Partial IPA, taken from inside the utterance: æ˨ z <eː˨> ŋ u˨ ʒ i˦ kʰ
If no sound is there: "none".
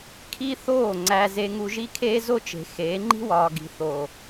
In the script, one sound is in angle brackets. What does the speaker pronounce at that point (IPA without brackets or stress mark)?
e˨